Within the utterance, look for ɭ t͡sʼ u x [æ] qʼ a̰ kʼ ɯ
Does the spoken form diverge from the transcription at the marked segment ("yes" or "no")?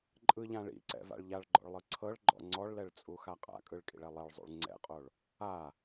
yes